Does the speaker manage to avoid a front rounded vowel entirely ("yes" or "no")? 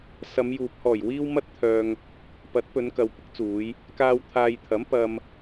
no